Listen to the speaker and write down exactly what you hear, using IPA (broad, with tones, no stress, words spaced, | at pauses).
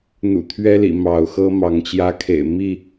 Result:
n̪ṵ˨˩t̪ʰɥɛ˦lḭ˨˩ mɑ˨˦ʊ̯xɤ˦ mɑ˨˦ŋt͡ɕjä˦kʰḛ˨˩ɪ̯ mi˥˨